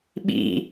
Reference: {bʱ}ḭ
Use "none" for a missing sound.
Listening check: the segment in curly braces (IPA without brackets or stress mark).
ɓ